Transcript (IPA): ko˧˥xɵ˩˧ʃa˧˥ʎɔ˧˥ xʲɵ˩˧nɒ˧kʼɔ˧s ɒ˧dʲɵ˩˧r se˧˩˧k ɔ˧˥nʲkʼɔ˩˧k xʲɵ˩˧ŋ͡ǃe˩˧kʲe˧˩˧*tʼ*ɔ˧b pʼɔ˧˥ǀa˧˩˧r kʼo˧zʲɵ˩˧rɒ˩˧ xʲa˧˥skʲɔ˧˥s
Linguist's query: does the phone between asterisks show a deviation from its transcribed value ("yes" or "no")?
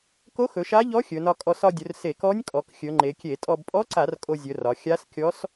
no